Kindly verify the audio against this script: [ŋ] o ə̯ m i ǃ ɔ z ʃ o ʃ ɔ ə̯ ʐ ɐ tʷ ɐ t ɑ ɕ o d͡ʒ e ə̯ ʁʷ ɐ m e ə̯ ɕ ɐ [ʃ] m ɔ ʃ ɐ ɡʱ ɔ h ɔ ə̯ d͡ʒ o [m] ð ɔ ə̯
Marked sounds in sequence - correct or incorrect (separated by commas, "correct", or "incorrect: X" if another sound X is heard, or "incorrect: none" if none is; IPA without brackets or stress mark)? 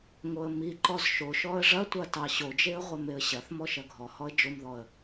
correct, incorrect: θ, correct